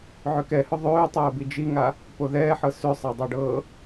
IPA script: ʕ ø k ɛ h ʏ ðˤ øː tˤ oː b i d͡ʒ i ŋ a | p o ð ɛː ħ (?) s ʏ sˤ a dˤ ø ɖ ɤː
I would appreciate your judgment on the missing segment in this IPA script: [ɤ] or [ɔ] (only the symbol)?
ɤ